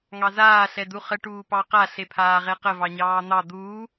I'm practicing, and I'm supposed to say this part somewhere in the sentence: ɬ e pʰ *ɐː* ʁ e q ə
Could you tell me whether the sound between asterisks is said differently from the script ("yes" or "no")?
yes